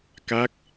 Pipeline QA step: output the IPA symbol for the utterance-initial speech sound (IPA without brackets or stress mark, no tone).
k